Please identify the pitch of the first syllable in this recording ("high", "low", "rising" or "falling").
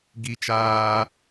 high